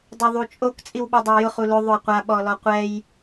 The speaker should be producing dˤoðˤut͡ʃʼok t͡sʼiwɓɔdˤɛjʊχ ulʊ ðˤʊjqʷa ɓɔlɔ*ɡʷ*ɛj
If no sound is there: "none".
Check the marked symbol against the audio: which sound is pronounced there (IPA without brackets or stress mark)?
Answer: qʷ